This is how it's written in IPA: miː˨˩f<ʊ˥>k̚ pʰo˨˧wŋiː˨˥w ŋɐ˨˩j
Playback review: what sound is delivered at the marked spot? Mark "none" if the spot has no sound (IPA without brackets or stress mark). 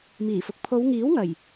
ʊ˨